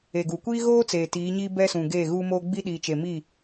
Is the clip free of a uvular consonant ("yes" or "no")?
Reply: yes